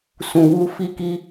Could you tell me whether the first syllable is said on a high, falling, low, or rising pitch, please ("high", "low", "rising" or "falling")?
low